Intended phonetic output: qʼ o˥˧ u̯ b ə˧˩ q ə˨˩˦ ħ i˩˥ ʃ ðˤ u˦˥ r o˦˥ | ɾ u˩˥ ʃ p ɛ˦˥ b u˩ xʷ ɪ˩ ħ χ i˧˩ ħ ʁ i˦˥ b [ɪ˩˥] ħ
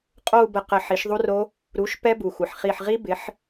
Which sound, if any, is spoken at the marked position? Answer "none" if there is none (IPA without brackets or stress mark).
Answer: ɪ˩˥